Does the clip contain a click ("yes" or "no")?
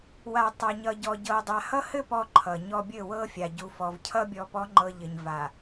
yes